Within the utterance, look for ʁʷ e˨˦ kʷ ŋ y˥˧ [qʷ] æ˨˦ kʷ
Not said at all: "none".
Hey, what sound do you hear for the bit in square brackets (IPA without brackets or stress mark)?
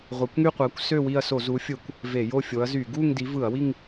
qʷ